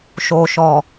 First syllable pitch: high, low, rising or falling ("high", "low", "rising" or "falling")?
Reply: low